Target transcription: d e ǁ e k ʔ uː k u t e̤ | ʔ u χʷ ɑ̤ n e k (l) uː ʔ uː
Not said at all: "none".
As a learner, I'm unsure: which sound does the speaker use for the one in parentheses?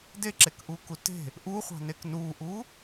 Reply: n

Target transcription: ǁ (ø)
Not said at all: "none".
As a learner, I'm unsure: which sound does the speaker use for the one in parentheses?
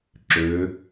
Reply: ø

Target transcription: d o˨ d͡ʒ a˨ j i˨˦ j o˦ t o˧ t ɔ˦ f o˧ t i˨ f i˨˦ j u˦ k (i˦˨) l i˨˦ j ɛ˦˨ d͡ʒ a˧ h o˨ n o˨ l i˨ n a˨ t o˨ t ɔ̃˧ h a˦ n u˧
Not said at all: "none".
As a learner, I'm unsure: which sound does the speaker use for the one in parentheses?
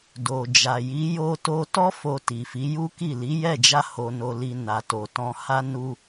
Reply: i˦˨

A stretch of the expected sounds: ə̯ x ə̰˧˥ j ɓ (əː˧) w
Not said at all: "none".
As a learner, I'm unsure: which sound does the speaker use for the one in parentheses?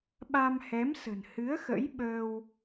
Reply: əː˧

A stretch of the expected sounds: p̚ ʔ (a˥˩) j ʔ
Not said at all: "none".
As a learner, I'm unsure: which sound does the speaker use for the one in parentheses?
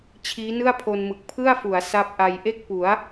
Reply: a˧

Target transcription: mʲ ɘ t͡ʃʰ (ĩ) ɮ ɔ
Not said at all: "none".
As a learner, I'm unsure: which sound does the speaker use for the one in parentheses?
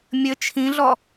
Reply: ĩ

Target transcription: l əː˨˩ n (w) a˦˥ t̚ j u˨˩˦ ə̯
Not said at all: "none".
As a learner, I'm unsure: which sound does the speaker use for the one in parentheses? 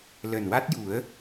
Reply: w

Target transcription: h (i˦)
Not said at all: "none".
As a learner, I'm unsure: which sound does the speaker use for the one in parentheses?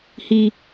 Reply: i˦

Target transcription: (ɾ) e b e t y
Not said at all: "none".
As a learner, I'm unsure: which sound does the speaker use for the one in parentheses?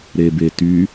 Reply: ɾ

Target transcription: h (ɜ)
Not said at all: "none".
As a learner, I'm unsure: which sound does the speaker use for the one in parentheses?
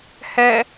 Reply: ɛ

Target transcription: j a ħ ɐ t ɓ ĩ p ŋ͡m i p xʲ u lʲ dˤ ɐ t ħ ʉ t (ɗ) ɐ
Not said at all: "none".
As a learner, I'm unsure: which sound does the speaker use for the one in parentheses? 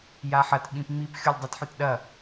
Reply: ɗ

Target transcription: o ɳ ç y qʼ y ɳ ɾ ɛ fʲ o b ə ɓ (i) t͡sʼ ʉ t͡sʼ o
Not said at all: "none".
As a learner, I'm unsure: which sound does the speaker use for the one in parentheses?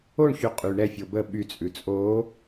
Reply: y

